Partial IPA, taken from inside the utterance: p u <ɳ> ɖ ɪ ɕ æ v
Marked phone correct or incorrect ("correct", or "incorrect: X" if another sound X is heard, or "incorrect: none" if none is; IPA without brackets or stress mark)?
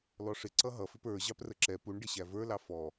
correct